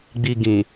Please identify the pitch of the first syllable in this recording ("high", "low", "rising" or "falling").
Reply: low